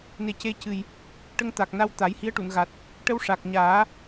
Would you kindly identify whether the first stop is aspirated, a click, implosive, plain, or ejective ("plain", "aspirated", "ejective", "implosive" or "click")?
plain